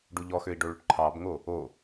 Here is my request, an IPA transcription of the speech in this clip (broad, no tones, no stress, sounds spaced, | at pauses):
ɖ u ʎ ɔ x ø i̯ ɖ o ɭ ʏ ʈ ǃʰ ɑ b ŋ o | o